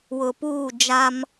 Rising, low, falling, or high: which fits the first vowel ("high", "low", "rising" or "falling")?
low